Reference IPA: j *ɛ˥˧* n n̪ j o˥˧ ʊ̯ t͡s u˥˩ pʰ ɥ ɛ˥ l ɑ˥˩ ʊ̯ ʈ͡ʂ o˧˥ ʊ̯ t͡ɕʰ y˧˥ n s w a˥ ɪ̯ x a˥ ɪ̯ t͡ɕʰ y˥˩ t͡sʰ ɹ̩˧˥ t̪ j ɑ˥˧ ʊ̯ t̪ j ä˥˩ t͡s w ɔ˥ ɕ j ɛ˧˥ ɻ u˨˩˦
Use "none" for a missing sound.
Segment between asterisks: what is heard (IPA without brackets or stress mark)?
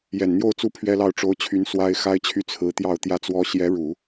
ɛ˨˩